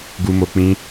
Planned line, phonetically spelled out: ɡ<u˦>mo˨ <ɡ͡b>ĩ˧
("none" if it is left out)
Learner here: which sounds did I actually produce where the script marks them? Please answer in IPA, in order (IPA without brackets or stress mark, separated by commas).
u˨, k͡p